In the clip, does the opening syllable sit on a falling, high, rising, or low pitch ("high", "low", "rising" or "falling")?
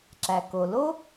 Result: low